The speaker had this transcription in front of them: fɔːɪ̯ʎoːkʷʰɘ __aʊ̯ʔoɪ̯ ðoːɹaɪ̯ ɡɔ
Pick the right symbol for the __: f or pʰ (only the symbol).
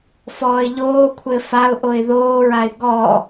f